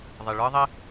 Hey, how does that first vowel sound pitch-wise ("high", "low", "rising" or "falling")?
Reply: low